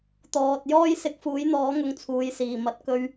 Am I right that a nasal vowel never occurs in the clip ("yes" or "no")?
yes